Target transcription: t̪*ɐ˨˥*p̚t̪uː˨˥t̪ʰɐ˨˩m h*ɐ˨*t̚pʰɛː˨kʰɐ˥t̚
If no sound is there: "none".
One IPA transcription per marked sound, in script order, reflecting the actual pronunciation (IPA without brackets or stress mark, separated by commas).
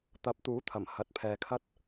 ɐ˨˥, ɐ˨